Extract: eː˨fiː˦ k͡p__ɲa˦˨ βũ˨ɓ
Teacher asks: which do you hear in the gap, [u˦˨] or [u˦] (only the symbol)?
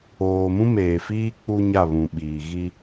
u˦